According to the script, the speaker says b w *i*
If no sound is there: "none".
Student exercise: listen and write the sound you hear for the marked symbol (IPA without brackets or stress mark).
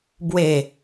e